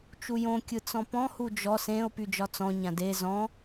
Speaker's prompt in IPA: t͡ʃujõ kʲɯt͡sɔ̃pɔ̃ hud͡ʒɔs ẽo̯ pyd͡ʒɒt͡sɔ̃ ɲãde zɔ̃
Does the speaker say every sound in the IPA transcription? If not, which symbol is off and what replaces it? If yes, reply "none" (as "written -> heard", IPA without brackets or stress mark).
none